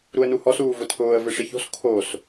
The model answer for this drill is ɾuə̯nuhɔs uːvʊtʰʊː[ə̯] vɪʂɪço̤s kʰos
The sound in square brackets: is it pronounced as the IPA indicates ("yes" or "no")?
yes